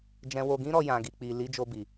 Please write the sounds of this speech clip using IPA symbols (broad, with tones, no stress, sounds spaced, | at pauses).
d͡ʒ ɛ̃˧ w o˧ ɡ ĩ˦ ɾ ɔ˧ j ã˨ ɡ i˨ k͡p i˨ l i˨˦ d͡ʒ o˧ b i˨